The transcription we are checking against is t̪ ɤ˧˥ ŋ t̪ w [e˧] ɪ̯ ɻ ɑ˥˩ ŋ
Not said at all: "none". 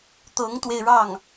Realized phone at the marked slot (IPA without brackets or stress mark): e˧